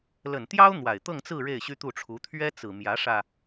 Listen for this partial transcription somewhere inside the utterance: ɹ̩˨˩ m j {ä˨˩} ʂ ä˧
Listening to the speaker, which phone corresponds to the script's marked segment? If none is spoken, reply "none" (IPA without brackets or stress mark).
ä˧˥